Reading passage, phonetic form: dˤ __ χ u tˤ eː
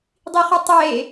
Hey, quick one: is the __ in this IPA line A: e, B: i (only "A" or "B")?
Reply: B